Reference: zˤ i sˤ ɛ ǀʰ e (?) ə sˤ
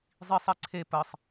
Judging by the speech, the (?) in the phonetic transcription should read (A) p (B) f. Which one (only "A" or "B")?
A